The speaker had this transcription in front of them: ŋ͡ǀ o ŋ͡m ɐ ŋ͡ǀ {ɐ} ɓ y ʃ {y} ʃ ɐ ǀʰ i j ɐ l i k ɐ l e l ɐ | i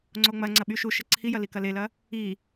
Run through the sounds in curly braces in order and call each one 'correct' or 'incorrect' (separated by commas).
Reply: correct, incorrect